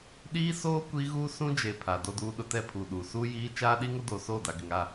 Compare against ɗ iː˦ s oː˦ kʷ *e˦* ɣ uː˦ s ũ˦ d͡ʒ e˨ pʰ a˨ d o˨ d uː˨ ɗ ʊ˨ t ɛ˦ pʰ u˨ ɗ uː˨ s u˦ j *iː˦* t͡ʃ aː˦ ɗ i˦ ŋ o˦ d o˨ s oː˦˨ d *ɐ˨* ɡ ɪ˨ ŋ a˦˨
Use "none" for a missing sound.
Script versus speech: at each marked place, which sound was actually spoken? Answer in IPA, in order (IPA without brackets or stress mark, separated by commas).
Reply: i˦, iː˦, a˨